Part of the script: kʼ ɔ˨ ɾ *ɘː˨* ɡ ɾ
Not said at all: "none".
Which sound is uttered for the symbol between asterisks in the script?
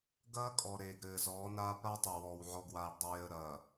eː˨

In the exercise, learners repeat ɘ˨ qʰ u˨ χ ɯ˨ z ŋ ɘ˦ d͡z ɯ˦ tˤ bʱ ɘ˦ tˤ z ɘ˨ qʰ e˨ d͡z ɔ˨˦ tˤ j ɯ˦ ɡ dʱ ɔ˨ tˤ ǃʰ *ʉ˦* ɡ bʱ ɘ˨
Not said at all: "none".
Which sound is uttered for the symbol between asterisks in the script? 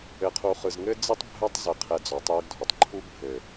u˦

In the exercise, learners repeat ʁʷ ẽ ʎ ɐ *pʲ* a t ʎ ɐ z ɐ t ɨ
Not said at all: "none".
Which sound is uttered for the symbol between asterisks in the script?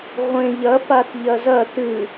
p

